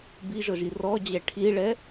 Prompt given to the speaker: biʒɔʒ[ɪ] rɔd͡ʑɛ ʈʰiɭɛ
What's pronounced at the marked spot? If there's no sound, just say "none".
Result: i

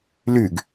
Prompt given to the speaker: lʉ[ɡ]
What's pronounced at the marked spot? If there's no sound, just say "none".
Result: ɡ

